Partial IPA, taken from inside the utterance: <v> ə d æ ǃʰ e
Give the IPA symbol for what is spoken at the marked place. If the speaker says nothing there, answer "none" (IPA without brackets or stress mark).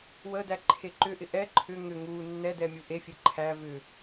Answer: w